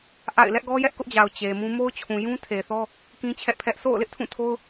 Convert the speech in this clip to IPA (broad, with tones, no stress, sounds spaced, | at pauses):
ʔ a̰˦˨ ɪ̯ l ɛ˦ ʔ ɡ ɔ˦ j ɛ˦ ʔ k ʊ˦ ʔ d͡ʑ a˨ ʊ̯ t͡ɕ e˨ m ũ˦ m o˦ ʊ̯ t͡ɕʰ ũ˨ j ũ˦ tʰ e˨ θ ɔ˦ | k ĩ˦ t͡ɕʰ ɛ˦ ʔ pʰ ɛ˦ ʔ sʰ o̰˦˨ ʊ̯ l ɪ˦ ʔ tʰ ũ˦˨ tʰ o˦ ʊ̯